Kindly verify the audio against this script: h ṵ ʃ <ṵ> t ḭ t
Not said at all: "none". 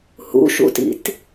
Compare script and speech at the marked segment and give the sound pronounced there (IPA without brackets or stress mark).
ṵ